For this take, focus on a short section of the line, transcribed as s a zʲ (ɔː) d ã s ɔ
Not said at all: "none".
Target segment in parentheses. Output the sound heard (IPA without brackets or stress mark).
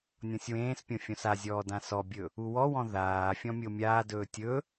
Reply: ɔː